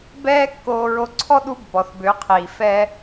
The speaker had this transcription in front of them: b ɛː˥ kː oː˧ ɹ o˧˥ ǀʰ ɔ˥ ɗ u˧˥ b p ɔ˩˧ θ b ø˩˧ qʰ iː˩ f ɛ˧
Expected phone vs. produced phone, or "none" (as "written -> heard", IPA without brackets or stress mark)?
none